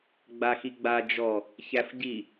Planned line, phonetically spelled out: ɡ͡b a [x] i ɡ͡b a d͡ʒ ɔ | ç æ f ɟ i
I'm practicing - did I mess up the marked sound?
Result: no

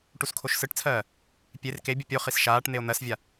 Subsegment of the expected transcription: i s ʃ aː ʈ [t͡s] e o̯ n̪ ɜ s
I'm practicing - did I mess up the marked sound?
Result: yes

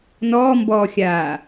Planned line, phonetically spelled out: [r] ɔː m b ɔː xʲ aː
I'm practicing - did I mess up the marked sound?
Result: yes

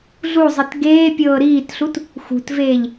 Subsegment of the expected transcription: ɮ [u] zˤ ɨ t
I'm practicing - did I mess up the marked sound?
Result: no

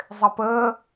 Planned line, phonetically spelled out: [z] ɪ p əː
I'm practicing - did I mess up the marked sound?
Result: yes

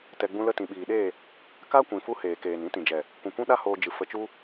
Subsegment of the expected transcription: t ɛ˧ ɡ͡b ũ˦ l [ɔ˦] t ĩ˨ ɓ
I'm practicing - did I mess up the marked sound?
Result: yes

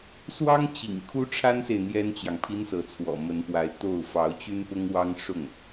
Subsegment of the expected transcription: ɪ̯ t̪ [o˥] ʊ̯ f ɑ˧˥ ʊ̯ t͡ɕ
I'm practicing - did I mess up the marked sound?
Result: yes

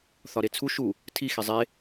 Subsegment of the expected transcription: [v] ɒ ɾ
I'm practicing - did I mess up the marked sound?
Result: yes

